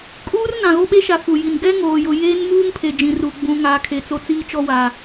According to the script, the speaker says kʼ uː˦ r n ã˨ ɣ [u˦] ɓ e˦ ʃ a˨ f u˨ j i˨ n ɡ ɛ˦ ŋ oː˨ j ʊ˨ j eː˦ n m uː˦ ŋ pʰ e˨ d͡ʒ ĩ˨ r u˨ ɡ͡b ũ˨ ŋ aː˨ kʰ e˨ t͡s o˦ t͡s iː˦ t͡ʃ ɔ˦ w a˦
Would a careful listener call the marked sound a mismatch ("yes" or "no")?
yes